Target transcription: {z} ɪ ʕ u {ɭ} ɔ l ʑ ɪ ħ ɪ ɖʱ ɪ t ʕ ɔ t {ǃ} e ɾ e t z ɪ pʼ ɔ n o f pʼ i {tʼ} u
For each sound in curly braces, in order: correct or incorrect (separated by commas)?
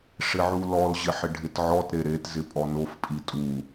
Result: incorrect, incorrect, incorrect, correct